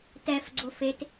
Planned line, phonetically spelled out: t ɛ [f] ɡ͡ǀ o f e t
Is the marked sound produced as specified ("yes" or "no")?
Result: yes